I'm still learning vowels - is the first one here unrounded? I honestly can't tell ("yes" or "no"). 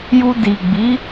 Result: no